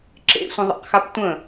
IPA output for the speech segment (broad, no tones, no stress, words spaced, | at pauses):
ǁḛsʷə̃ðˤa̰qxap tʷə̃